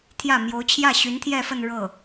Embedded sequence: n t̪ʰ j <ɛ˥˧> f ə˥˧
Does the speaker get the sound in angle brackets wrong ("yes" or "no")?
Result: no